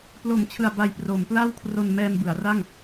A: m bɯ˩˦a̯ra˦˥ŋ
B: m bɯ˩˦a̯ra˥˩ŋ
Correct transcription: B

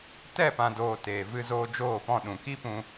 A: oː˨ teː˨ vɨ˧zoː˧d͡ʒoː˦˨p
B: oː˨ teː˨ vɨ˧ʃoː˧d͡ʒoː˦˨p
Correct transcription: A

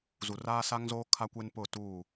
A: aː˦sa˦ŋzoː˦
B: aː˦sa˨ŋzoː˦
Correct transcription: A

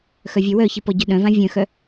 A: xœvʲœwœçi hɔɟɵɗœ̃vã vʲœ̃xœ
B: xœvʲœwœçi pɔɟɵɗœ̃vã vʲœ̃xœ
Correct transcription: B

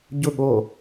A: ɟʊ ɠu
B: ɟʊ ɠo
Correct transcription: B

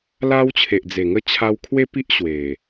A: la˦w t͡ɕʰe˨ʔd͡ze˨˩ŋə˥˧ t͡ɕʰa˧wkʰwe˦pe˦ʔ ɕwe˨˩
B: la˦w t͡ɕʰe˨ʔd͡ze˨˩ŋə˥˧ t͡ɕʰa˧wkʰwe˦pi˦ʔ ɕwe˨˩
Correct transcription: B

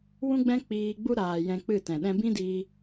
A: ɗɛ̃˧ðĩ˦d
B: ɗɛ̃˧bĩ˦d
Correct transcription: B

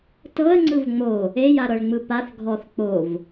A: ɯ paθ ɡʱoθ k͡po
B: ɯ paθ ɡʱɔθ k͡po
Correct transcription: B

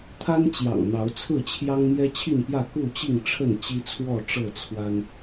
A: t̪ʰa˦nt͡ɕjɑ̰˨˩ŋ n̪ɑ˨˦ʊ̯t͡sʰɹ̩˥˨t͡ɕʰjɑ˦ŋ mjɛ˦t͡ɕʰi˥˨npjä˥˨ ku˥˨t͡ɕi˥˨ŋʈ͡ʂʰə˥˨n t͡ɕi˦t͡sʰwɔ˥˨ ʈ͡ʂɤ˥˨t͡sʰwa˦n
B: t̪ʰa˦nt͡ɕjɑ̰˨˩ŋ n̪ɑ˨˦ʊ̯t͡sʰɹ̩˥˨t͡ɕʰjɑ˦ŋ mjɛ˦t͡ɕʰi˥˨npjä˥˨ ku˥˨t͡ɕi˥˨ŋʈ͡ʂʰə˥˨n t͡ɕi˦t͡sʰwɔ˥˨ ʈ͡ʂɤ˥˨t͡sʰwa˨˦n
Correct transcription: A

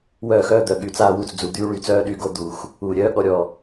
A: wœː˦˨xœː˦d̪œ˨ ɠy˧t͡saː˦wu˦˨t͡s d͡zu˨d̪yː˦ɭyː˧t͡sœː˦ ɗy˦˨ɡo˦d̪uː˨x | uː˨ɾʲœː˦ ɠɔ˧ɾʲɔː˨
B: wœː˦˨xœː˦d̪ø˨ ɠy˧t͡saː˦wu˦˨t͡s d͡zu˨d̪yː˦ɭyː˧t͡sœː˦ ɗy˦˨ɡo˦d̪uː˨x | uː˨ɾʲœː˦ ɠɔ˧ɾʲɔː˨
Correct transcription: A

